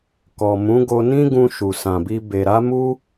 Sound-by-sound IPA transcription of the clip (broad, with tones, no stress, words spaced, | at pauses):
kɔ˨mũ˨˦ɡo˧ nĩ˦ɡũ˧ ʃu˨sã˨bi˧ be˨ɾa˨˦mu˦